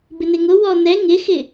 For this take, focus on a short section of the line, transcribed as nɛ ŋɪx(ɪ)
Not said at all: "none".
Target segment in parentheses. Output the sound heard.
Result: ɪ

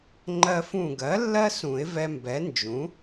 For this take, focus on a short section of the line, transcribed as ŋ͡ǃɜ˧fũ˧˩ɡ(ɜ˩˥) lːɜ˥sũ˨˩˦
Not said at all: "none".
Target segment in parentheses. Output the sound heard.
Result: ɜ˩˥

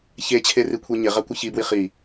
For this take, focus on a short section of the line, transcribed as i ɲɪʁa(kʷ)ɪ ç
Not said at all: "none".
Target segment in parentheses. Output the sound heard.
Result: kʷ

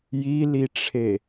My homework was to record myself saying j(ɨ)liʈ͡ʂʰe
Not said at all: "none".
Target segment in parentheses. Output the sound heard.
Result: i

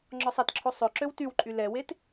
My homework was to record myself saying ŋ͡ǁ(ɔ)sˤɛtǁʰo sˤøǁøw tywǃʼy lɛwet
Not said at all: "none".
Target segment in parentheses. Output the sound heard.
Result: ɔ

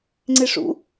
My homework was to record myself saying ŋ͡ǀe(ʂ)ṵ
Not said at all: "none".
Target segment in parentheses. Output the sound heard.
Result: ʂ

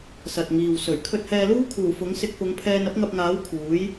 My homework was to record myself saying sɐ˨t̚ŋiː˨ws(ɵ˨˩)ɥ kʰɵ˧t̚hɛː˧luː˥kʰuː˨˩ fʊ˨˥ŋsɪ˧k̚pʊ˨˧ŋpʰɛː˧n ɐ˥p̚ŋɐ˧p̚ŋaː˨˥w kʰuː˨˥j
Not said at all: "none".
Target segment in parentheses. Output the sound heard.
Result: ɵ˨˩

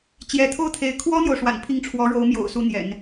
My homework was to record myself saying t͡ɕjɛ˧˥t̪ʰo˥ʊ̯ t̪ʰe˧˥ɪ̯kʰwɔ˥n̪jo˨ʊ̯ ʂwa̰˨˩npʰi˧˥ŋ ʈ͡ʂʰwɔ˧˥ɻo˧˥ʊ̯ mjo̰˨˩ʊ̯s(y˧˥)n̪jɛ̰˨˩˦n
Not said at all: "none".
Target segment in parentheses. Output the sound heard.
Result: u˧˥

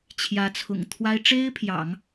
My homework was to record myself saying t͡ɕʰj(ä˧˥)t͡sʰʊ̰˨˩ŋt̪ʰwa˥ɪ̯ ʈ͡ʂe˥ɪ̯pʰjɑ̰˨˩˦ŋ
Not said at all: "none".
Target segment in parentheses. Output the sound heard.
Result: ä˧˥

